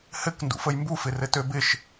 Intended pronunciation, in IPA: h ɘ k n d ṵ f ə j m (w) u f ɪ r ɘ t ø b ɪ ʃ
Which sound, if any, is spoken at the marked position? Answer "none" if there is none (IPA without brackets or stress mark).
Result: b